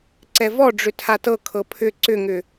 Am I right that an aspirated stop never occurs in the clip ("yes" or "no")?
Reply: no